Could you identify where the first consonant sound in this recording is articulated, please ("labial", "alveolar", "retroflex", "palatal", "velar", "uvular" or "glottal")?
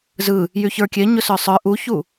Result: alveolar